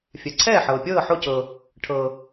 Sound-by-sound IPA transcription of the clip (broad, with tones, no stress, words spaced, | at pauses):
fʲɜ˩ǀʰɛː˥˩ħɤː˩pʲɤː˥˩ ħo˥˩cɤ˩ | ʈʰɤ˩